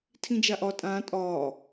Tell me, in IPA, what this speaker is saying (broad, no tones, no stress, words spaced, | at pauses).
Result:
tʰĩd͡ʒaʔɒ tʼãː tʼɒː